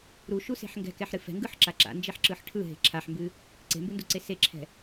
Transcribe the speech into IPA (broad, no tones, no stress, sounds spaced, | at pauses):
ɾ u ʃ u s e̤ ħ ŋ ɡ ɛ̤ k ɛ ħ ɾ ɨ f ɛ̤ ŋ ɡ ɯ ħ ǁ a ǁ a̰ n d͡ʒ e ħ ǁ ɯ ħ ʈʰ ɯ ɦ e̤ ǁʰ a ħ m b ɨ | ǀ e̤ m b ɯ n d u ǀ e s e ǁʰ ɛ̤